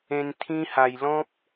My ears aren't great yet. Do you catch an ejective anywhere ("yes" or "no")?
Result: no